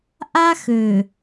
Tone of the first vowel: high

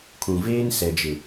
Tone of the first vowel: low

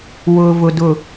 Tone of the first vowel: low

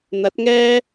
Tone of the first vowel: rising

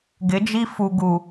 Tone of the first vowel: rising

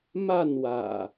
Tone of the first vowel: falling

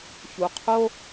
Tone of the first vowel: low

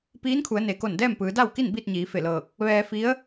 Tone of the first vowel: rising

